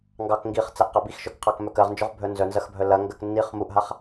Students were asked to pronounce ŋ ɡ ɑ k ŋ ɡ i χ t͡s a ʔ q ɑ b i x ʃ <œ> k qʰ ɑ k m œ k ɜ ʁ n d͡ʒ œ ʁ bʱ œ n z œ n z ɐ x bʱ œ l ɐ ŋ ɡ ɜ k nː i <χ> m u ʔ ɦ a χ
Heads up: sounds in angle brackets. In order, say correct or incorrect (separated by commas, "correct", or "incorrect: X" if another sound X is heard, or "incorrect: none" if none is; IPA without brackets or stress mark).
correct, correct